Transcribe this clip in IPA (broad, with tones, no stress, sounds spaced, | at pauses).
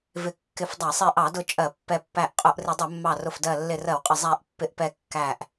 v ɪ˧˩ kː ɪ˧˩ f dˤ æ˧˩˧ sˤ i˧˩ ʔ ɑ˧˩˧ d ʊ˧˩ t͡ʃʼ ɜ˧˩˧ pː ɛ˧˩ pː æ˧˩ ʔ qʼ ʊ˧˩˧ ʔ r ɪ˧˩˧ dˤ ʊ˧˩˧ mː ɑ˧˩ r ʊ˧˩ f d ɜ˧˩ lː ɪ˧˩ r ɜ˧˩˧ w qʼ ə˧˩ zˤ æ˧˩ ʔ pː ɪ˧˩ ʔ p ɛ˧˩ kː æ˧˩ ʔ